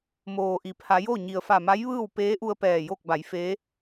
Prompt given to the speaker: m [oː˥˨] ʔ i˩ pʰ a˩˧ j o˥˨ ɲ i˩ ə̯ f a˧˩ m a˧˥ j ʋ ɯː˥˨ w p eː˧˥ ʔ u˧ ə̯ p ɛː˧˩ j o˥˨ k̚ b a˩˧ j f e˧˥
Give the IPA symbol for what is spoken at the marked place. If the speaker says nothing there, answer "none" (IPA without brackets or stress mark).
oː˩